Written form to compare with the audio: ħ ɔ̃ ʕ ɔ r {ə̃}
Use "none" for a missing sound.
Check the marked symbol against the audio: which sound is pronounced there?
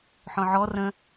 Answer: ə̃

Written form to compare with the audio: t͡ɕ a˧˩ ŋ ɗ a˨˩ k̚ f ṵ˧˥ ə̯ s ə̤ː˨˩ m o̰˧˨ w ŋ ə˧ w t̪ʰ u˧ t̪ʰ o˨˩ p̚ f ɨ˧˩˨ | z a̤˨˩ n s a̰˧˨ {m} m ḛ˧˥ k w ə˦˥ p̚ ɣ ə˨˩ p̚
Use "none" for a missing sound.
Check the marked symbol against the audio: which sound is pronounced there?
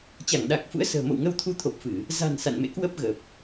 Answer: n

